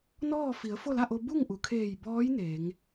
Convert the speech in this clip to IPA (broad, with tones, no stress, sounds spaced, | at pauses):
n ɔː˥˨ f i˩˧ ə̯ f o˥˨ l a˥˨ ʔ o˧ b u˥˨ ŋ ʔ u˩ kʰ eː˧˩ j b ɔː˧˥ j n e˩˧ ŋ